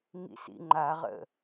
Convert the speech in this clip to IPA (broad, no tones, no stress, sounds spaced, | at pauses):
ŋ ḭ s ḭ ŋ͡ǃ a ʁ ə̰